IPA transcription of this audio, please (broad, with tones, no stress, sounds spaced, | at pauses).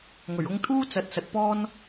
ŋ ɵ˨˩ ɥ ʊ˧ ŋ t̪ʰ uː˥ t͡s ɐ˨˥ t̚ s ɐ˨ t̚ p ɔː˥ n